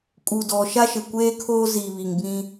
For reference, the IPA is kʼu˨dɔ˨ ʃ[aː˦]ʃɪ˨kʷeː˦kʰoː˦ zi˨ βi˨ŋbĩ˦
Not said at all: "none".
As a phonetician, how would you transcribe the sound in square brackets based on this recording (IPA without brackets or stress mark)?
a˦